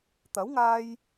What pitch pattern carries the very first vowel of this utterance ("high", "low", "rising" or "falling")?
rising